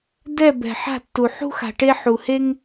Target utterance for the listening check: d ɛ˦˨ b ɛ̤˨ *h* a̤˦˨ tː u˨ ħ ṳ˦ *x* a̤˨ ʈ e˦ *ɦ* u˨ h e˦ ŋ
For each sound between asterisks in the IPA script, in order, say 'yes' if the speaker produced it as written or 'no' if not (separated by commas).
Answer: no, yes, no